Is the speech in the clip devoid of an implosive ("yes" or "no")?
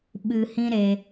no